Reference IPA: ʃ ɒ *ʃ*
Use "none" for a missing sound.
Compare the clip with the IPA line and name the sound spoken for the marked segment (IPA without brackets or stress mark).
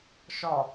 none